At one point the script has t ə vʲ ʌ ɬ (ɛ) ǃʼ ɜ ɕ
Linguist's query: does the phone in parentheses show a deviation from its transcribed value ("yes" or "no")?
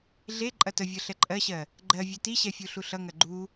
no